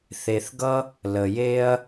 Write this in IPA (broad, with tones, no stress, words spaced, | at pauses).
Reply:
θe˨θɡʌ˦ | lə˨je˦ɐ̯